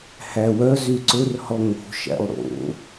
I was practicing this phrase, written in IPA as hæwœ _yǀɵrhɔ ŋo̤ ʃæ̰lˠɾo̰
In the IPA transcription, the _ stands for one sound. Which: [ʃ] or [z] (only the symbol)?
z